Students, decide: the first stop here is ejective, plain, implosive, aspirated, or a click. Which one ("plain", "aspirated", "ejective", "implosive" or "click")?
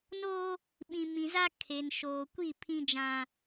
implosive